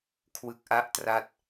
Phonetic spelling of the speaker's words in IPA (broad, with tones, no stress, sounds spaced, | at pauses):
kʰ w ɯ˦˥ k̚ ʔ a˥˩ ʔ t r a˥˩ t̚